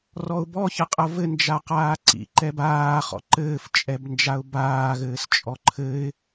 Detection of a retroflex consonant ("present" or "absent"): absent